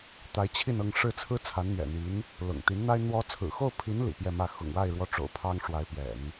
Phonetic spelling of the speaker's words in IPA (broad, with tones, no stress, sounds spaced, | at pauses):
t̪ a˧˥ ɪ̯ t͡ɕʰ i˥˧ n ɤ˥˧ ŋ ʂ ɻ̩˥˩ t͡sʰ ɹ̩˥ t͡sʰ a˧˥ n n̪ ɥ ɛ̰˨˩ n̪ i˧˥ n | l ʊ̰˨˩ ŋ t̪ i˧˥ n n̪ a˥ ɪ̯ n̪ w ɔ˧˥ t͡sʰ ɹ̩˨˩ x o˥˩ ʊ̯ pʰ i˧˥ n l ḭ˨˩ p j ɛ˥˧ m ä˥˩ x ʊ̰˨˩ ŋ w a˥˩ ɪ̯ ɻ w ɔ˥ ʈ͡ʂ o̰˨˩ ʊ̯ pʰ ɑ˥ ŋ ʂ w a˧˥ ɪ̯ p j ɛ̰˨˩˦ n